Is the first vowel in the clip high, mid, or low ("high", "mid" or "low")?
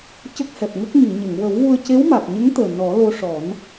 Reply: mid